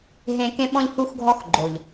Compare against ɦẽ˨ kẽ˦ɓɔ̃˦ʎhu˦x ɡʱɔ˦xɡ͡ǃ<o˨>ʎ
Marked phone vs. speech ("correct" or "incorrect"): correct